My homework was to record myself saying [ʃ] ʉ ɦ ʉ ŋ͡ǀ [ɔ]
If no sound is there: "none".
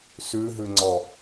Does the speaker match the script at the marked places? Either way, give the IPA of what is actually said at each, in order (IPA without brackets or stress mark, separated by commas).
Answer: s, ɔ